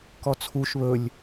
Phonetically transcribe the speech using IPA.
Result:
kɔt͡sʰuʃ βɵlʲ

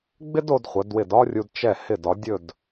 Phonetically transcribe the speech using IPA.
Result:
ɡ͡bɪ˥do˧d χʷə˩˧dwɪ˧˩dɒ˥rʲu˧d t͡ʃɛ˧˩hɪ˧˩dɒ˩˧ dʲɵ˥˧d

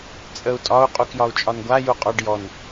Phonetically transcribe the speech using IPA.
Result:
t͡sʼəu̯ tʼɒu̯ qʼukjɒu̯t͡ʃʼɒnɡʷa juqʼɔɖ jɔn

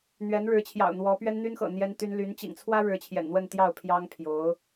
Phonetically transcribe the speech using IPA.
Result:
n̪ɥɛ˧˥nɻɻ̩˧˥t͡ɕʰjɑ̰˨˩ʊ̯ n̪wɔ˧˥ pɥɛ˥n n̪y˥nxɤ̰˨˩ n̪jɛ˥nt̪y˥n ly˧˥n t͡ɕḭ˨˩ŋt͡sʰwä˥ ɻɻ̩˧˥t͡ɕʰjɛ̰˨˩nn̪wə˥˧nt̪jɑ˥˩ʊ̯ pʰjɑ˥ŋpʰjo˧˥ʊ̯

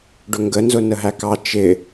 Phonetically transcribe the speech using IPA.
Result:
ɖʊŋɡənzʊ nəɦækɑ t͡ʃɪ

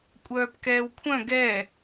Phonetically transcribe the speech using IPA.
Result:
kʷʼœːpkɛːwkʷʰœ̃ ɡɛ

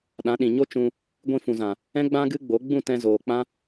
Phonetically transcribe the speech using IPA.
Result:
ɗã˨˦ɗĩ˨ ɲo˦t͡ʃũ˧ | ɡʷĩ˧fũ˨zã˨ | ɛ̃˦ɡ͡bã˦ɡɨ˦ ɡ͡bo˨˦ ɡ͡bũ˦˨tɛ̃˧ zoː˨k͡pã˦

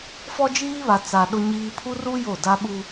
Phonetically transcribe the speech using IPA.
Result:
fɔ˦d͡ʒiː˦βa˨ t͡sa˨ ɗʊ˦ɲiː˦ pʰu˦ru˦ jo˦˨da˦ɓu˦

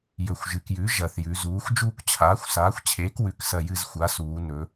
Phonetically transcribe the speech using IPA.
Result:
jɵ˨˩xʷʒɨ˩˧kjʉ˩˥ ʒɐ˨˩θjʉ˩˧zuː˩˥xʷ d͡ʒuː˦˨kt͡ɕʰaː˩˥xʷ saː˩˥xʷt͡ɕʰeː˩˥k wʉ˩˧ksɐ˨˩ jɨ˦˨zxʷa˩˥suː˩˧ nɵ˩˧

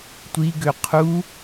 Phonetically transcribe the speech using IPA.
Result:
tʷiɡø qʰu

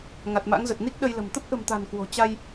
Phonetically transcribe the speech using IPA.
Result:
ŋa˨˩t̚ma̰˧˥ŋzə˨˩t̚ ni˦˥k̚ ɗə˧jlə̤˨˩m t̪ə˦˥p̚ʔə̤˨˩mt̪a̤˨˩n kwo̤˨˩ t͡ɕa˧j

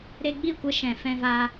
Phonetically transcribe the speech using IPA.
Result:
ɾe˧ɡ͡bi˦˨kʷə˧ ʃɛ̃˨ fɛ̃˧va˧

